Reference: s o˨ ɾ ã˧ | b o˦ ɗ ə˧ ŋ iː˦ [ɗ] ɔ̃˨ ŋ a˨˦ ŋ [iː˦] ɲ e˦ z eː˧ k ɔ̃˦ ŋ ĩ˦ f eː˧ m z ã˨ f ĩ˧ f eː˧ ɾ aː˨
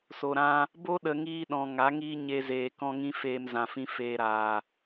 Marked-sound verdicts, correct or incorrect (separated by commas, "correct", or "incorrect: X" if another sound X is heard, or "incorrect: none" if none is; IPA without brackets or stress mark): correct, correct